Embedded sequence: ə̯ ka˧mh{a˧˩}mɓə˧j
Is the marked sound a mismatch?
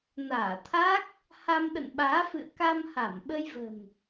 no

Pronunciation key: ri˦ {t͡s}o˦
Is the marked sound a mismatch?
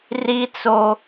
no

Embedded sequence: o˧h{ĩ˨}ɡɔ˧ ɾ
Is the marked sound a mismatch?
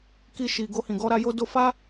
no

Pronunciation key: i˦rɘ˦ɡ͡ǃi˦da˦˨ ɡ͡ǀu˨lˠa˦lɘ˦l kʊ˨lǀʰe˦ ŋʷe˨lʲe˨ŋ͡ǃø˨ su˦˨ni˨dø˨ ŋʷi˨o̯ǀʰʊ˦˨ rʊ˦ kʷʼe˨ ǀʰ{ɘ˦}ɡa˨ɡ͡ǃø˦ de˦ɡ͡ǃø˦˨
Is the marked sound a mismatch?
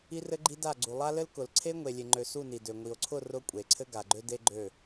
no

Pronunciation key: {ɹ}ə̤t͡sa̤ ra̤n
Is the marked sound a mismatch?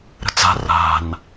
yes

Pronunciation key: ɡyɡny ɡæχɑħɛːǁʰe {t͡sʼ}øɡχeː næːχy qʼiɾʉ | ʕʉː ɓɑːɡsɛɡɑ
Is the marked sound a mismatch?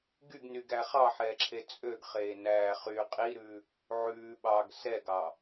no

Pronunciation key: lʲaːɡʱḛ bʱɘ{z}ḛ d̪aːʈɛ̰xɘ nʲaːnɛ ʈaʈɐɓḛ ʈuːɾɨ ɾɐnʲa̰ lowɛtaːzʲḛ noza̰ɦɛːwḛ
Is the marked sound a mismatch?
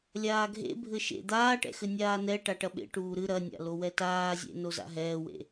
yes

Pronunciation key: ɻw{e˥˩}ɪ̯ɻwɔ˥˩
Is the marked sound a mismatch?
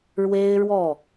yes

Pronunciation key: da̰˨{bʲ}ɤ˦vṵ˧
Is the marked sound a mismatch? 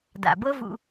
yes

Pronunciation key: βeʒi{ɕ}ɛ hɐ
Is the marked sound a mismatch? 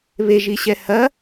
no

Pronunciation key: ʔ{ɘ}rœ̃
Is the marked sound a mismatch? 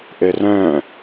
no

